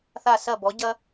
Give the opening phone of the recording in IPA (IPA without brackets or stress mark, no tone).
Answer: θ